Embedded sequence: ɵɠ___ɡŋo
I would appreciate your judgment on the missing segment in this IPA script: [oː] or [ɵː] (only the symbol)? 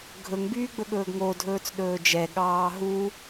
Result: ɵː